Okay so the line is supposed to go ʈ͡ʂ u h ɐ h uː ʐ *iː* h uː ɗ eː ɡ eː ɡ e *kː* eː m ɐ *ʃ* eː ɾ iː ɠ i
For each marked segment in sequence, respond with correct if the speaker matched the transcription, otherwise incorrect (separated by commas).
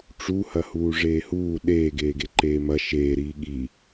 incorrect, incorrect, correct